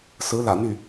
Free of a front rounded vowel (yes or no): no